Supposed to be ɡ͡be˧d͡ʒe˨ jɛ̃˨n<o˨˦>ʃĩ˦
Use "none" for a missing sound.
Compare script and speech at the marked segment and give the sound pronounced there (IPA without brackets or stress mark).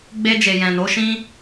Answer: o˨˦